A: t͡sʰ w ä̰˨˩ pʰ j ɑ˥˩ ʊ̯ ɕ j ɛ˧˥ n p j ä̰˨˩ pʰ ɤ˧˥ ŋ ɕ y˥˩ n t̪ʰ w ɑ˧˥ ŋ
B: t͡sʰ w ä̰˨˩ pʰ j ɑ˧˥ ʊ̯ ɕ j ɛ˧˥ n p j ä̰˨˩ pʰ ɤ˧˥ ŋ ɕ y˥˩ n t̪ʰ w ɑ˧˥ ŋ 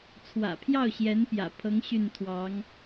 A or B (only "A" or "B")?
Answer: A